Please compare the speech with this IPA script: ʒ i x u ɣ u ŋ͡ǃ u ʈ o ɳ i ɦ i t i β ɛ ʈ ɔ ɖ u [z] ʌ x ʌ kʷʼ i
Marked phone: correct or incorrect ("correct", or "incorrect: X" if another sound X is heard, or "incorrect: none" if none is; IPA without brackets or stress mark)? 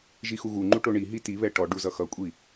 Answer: correct